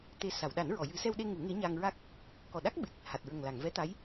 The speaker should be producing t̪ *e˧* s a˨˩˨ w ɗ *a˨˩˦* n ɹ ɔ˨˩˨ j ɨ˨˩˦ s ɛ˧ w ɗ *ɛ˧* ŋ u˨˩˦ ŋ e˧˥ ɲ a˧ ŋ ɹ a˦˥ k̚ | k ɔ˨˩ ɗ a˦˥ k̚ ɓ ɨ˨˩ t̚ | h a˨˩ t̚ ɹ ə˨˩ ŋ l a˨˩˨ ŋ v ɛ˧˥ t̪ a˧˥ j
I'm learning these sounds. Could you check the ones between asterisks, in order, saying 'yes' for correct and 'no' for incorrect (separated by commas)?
no, yes, no